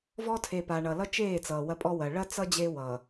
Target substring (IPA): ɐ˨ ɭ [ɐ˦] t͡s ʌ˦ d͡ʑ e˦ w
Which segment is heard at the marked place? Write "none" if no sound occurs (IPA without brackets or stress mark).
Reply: ɐ˦